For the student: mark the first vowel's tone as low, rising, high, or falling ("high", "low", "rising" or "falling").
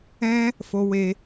high